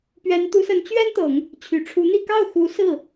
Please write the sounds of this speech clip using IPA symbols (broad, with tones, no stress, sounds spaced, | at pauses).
p ɥ ɛ˧˥ n t̪ u˧˥ s ə˧˥ n t͡ɕ ɥ ɛ˥ n t̪ ɤ˨˩˦ ŋ | t͡ɕʰ y˨˩ ʈ͡ʂʰ u˧˥ n̪ i˥˧ k ɑ˥˩ ʊ̯ x u˧˥ s ɹ̩˥˩